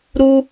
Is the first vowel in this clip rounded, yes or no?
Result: yes